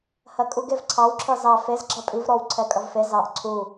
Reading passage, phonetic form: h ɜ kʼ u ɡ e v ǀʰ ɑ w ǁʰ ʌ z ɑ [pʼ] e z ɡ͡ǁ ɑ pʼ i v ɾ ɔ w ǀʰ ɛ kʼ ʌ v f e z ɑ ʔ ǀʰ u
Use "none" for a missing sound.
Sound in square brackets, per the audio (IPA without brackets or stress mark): f